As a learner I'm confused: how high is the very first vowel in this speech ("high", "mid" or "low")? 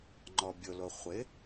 mid